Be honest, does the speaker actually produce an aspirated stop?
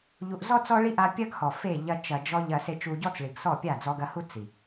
no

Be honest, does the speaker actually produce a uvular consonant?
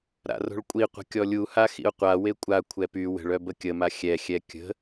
yes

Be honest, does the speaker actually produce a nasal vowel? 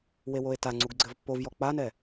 no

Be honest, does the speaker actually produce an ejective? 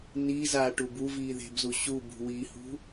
no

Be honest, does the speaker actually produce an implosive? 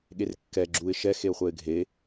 yes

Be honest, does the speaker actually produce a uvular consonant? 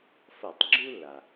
no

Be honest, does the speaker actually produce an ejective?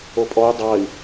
yes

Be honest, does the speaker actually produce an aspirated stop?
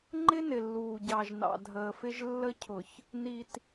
yes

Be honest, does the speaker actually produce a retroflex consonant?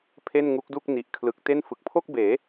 no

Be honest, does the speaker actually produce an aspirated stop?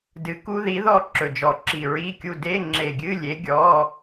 no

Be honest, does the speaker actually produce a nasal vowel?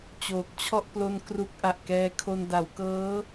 no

